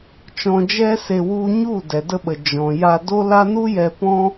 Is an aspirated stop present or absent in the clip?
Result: absent